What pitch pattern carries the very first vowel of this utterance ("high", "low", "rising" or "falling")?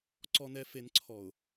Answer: low